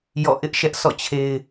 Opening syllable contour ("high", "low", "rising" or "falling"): falling